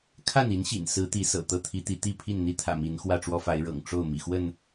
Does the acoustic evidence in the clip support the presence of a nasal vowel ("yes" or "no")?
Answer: no